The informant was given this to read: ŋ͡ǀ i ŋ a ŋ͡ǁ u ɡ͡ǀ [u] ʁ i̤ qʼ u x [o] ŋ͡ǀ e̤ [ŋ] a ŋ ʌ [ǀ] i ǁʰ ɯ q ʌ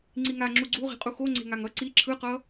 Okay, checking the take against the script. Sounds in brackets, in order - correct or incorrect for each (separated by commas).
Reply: correct, correct, correct, correct